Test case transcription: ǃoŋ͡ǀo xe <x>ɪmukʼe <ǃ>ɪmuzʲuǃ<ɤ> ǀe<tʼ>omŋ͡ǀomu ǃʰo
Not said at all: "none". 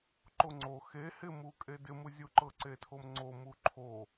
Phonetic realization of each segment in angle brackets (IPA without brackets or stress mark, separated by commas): h, d, ɤ, tʰ